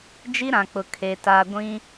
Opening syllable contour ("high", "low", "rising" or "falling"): high